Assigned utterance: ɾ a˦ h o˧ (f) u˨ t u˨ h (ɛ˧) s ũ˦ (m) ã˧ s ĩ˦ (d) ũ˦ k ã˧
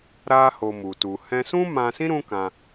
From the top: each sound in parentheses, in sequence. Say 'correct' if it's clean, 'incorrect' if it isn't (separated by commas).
incorrect, incorrect, correct, incorrect